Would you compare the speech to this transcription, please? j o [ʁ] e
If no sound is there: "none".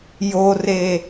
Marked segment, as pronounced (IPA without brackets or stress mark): r